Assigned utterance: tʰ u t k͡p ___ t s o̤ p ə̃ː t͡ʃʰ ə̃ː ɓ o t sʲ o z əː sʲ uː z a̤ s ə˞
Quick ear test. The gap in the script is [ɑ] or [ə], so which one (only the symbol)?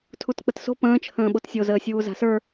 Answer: ə